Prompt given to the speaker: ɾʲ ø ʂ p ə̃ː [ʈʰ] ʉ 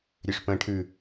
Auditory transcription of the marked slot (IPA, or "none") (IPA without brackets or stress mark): ʈʰ